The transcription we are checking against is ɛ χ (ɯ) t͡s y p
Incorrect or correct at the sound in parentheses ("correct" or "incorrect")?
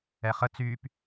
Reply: incorrect